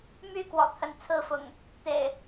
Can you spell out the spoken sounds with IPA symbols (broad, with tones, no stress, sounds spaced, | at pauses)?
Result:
m y˥˨ k w ɔ̰˨˩ t̪ʰ ə˨˦ n t͡sʰ ɹ̩˥˨ f ʊ̰˨˩ ŋ | t̪ ḛ˨˩ ɪ̯